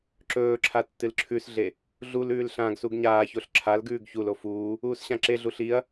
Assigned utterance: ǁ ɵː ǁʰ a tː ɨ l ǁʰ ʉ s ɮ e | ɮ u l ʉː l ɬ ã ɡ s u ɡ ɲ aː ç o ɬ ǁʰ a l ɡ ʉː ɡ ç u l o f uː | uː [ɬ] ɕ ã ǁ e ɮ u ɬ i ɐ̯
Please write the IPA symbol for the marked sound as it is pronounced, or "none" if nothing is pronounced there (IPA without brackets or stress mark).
s